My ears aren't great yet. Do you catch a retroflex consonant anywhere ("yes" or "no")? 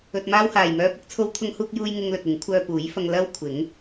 no